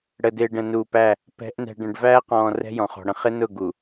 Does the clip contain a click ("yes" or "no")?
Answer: no